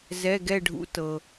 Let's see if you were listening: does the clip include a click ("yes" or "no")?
no